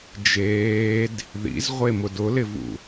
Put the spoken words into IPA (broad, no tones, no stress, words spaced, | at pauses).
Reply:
d͡ʒeːd | ðḭzʁʷemʊd ʊlɪvṵ